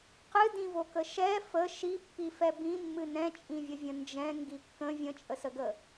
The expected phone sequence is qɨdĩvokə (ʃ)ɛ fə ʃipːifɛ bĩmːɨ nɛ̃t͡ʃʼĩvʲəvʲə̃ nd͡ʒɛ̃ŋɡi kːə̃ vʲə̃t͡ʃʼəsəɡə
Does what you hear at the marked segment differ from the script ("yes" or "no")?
no